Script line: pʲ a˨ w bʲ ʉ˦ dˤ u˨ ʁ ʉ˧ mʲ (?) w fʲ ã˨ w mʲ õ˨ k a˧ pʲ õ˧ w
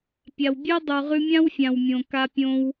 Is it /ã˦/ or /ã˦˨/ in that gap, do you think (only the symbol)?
ã˦